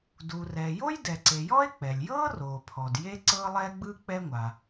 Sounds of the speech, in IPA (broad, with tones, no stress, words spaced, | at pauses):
du˩ rɛː˩jo˥j dɛ˩ǀe˩ jɔ˥e̯ k͡pɛ˩lʲjɤː˥ roː˩pʰɔ˩d je˥ ǀɤː˥lˠɛː˥ɡ͡bɯː˥ k͡pɛ˥ŋʷa˩